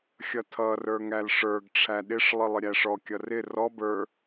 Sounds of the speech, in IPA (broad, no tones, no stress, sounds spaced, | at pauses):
xʲ ʌ tʰ ʌ r ə˞ ŋ æ l ʂ ə˞ ɡ ʈ͡ʂʰ æ ɗ ɪ ʂ lˠ ɪ lˠ ɪ ɾʲ æ ʂ ɔ kʲ ʌ r ɪ r ɔ b ə˞